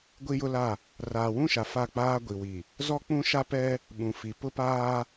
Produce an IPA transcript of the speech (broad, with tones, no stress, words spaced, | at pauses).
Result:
ɡʷi˦jʊ˦la˦˨ | raː˨wũ˦ʃa˨ fa˦˨k͡paː˦ ɡʷi˨wi˨ | zɔ˦k͡pũ˦ ʃa˦pɛ˦ | ɓũ˨fi˨ pʊ˦paː˦